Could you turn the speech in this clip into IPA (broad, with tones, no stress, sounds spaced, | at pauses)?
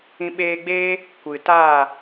ĩ˧ ɓ eː˧ ɡ͡b eː˦ | kʷ ɨ˨ t aː˦˨